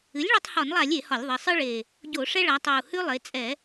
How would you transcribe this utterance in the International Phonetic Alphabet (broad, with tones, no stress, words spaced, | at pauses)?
ɨ˩˥lʲɭɒ˦tˤhɒ˧˩˧nlˠa˧˩˧lʲ e˧˩˧hɒ˧˩˧lʲðˤe˩˧ sˤɨ˦ɭe˨˩ | ɟo˧˩˧ʂɛ˦ɭa˩˧tˤɤ˨˩u̯ hʉ˦lˠe˩˧ t͡sʼɛ˧˩˧